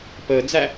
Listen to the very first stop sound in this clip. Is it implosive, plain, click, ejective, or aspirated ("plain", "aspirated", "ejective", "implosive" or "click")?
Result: plain